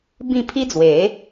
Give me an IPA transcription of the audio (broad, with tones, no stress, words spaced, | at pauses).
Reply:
bĩ˥˧ pʰi˦d͡zwe˨˦